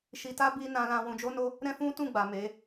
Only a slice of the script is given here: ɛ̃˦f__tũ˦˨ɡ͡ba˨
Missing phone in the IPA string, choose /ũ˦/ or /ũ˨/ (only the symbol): ũ˦